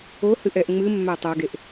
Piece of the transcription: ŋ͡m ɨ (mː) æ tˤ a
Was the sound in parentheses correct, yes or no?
yes